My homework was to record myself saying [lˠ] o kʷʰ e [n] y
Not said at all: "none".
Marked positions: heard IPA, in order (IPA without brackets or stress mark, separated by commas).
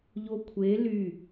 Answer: ʎ, l